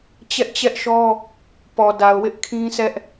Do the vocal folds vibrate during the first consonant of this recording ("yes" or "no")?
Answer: no